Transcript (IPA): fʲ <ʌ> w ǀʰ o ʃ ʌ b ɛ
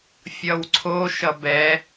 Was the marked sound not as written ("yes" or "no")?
no